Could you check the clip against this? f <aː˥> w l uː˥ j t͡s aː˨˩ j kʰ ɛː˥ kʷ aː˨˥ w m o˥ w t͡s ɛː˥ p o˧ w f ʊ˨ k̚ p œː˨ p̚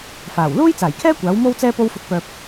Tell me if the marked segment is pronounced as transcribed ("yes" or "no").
no